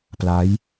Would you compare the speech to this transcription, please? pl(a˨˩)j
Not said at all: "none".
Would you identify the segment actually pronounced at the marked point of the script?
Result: a˦˥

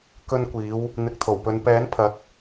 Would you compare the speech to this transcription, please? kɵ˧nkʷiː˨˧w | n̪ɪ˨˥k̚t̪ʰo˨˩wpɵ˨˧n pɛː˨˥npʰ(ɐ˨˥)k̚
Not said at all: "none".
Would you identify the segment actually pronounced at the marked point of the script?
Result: ɐ˨˥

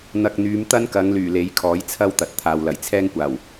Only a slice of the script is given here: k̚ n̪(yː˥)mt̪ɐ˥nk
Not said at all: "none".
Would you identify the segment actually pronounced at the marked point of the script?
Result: yː˨˧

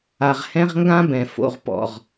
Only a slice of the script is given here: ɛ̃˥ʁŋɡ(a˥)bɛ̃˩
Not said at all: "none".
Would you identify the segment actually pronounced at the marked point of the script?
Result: ã˥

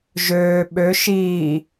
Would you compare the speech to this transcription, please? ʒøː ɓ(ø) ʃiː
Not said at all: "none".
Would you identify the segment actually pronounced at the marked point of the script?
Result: ø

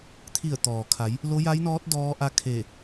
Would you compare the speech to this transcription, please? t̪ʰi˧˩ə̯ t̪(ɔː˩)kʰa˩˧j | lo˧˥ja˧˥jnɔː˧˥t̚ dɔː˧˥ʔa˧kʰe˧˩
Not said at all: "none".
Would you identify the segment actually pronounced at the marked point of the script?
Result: ɔː˩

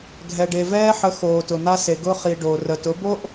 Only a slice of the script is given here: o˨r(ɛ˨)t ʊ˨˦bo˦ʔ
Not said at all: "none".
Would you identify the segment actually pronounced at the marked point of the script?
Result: ə˨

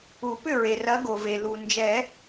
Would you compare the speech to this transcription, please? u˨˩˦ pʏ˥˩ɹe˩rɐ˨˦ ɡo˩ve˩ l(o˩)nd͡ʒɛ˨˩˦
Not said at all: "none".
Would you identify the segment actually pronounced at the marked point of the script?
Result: u˩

